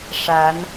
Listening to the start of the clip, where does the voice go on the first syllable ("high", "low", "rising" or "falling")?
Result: rising